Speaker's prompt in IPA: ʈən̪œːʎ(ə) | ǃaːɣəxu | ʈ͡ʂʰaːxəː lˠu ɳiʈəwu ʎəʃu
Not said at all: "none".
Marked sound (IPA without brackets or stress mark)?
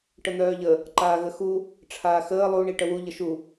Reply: ə